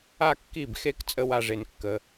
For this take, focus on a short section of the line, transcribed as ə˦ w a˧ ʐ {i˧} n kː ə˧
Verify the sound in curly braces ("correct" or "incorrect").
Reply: incorrect